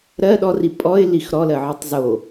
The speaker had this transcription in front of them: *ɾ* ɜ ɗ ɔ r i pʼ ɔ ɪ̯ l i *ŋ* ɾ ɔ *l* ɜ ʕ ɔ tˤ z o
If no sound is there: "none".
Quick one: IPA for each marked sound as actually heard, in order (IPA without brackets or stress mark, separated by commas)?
ɾ, x, l